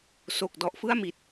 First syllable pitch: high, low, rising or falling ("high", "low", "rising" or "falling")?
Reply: low